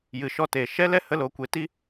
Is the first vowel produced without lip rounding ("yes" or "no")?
yes